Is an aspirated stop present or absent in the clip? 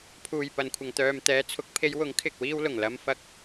present